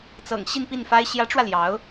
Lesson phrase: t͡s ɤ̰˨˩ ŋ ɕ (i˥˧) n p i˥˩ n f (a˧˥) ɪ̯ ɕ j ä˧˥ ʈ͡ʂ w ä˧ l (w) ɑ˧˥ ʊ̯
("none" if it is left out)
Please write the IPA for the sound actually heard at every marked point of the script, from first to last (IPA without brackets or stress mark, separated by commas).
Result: i˥˧, a˥, j